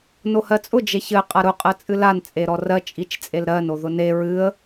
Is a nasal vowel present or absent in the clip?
absent